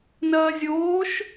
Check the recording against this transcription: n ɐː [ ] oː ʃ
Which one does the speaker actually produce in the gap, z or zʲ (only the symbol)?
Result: zʲ